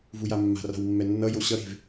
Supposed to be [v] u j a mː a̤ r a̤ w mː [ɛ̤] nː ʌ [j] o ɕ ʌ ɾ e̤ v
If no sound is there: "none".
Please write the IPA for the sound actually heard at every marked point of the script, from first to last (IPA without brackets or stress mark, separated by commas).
v, ɛ, j